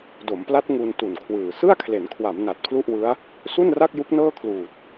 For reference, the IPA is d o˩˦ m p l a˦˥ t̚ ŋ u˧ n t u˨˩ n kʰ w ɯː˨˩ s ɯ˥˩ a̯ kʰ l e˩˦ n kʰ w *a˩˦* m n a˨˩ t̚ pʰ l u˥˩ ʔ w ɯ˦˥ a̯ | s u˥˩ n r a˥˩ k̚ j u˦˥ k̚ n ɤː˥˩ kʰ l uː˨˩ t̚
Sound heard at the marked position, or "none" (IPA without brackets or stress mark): a˩˦